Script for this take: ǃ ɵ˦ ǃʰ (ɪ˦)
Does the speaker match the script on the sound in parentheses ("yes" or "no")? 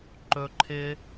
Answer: yes